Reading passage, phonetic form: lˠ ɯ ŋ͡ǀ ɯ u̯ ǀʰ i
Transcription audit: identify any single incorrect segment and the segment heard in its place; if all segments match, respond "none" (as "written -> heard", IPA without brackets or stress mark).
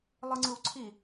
none